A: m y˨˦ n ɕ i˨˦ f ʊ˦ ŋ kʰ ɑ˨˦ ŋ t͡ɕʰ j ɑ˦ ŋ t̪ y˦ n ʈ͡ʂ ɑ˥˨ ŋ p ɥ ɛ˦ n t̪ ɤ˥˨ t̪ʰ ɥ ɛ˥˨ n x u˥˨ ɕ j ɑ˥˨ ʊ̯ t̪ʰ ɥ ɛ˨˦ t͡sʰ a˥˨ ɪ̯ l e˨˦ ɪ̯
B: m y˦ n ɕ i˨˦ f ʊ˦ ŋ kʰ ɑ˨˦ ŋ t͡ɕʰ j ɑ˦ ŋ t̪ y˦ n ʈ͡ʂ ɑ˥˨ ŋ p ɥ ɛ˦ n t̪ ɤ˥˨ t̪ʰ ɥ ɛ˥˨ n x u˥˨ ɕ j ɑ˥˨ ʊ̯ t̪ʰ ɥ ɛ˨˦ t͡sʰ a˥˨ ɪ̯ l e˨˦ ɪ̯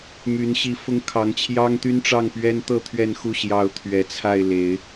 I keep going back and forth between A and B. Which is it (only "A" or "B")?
A